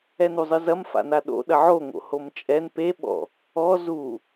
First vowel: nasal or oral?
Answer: oral